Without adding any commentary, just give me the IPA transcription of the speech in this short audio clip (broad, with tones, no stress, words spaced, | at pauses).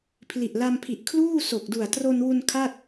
pʰli˨˩ʔla˧mpʰi˨˩ʔkʰluː˥˩ so˨˩k̚du˨˩a̯ tro˧nwu˧n kʰa˥˩t̚